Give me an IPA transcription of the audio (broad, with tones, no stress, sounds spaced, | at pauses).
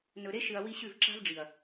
n ɵ˨ ɾ e˦ ʃ ɨ˨ ɐ̯ w i˦ ɕ ʉ˦˨ v ǁ a̤˦ v ɖ͡ʐ i˨ ɐ̯